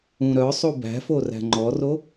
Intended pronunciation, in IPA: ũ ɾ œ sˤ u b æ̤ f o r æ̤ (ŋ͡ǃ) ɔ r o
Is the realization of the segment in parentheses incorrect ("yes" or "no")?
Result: no